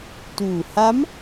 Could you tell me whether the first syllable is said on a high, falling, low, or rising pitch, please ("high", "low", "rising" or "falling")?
low